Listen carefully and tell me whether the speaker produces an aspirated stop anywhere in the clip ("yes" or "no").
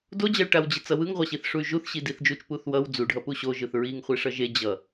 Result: no